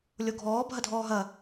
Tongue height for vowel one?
mid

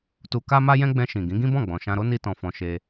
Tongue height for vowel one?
high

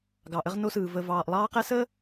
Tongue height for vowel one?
low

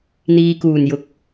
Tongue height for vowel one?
high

